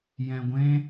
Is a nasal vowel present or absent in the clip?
present